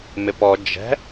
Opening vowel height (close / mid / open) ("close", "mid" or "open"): close